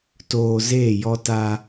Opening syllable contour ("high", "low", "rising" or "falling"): low